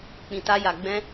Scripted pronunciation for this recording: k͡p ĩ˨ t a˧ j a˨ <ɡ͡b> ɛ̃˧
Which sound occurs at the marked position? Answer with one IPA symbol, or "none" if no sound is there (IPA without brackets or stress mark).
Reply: ɡ͡b